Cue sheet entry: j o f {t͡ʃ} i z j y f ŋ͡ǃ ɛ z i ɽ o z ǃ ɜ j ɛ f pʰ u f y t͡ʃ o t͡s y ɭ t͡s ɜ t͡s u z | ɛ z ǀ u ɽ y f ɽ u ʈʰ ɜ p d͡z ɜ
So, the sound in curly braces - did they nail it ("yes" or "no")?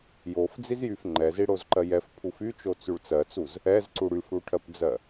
no